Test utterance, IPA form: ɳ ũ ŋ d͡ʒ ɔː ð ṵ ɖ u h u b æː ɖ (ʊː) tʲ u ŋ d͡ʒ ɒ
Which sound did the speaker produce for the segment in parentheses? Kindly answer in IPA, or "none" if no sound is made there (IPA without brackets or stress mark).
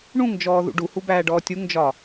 ɔː